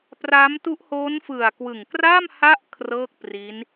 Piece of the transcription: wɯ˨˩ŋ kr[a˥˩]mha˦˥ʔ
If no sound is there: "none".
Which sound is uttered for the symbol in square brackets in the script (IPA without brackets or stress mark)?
a˥˩